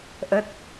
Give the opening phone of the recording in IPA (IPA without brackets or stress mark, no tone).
ʔ